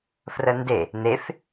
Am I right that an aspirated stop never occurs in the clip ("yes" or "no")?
yes